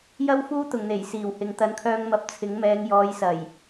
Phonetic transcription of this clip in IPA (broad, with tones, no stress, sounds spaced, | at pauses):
j ɐ˥ w f uː˥ t̪ ʊ˨˩ ŋ n̪ e˨˩ j s iː˨˩ w h ɪ˨ ŋ t̪ ɐ˨ n kʰ œː˧ ŋ m ɐ˨˥ p̚ t͡sʰ ɪ˨˥ ŋ m ɛː˨˧ ŋ j ɔː˨˧ j s ɐ˨˩ j